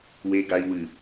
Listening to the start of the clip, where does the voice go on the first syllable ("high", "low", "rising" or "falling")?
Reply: low